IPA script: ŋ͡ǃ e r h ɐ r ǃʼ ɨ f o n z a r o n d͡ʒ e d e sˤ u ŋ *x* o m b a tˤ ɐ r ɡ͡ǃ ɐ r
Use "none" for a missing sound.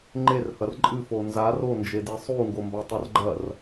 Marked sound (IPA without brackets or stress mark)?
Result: ɡ